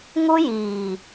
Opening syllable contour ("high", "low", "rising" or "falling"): high